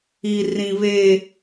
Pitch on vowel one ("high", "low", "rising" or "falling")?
high